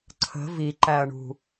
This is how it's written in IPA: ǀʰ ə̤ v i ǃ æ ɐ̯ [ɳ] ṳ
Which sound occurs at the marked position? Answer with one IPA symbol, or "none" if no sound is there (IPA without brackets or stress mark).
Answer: ɳ